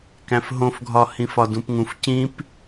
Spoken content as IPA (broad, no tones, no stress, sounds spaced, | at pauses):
k æ̃ f ɦ õ f ɡʱ ɒ h ĩ f ɒ d ũ p ŋ ũ f c ĩ p